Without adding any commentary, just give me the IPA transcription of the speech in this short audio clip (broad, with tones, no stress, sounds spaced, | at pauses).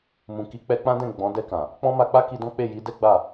m ũ˨ k i˨˦ k͡p ɛ˧ k͡p ã˦ d ɛ̃˦˨ ɡ͡b ɔ̃˨˦ d ɛ˧ k ã˨ | k͡p ɔ̃˦ m a˧ k͡p a˦ k i˧ d ɔ̃˦ k͡p e˦˨ j i˨˦ d ɛ˦ ɡ͡b a˦˨